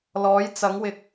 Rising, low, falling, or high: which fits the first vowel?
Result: rising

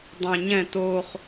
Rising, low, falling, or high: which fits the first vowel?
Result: low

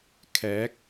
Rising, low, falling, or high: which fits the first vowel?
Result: rising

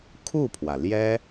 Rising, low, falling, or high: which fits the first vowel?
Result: falling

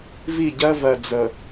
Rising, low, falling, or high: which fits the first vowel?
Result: falling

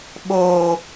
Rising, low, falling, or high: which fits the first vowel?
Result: low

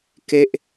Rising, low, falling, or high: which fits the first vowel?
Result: falling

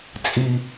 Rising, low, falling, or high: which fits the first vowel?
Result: low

